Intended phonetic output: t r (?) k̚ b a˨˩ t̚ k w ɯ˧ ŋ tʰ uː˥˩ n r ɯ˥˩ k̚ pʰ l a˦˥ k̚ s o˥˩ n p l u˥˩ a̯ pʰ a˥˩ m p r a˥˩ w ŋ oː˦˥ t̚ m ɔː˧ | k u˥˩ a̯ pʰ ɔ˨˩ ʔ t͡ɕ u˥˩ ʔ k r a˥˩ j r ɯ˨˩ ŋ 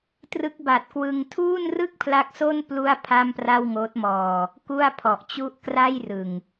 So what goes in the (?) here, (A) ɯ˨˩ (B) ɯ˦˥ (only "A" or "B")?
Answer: B